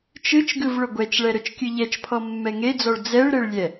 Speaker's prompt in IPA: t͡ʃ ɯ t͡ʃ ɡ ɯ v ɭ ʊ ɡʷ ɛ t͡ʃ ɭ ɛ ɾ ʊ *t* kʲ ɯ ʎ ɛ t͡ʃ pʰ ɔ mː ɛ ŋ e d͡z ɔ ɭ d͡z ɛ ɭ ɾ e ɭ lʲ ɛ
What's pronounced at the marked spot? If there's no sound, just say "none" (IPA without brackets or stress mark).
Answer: t͡ʃ